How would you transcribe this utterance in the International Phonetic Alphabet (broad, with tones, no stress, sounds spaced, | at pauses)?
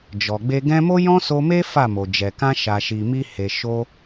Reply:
d͡ʒ ɔ˨ ɡ͡b e˧ ɡ ɛ̃˦ m o˦ j ɔ̃˦ s o˧ m e˦ f a˦˨ m o˨ d͡ʒ ɛ˨ k ã˧ ʃ a˨ ʃ i˨ m i˧ h e˨ ʃ o˧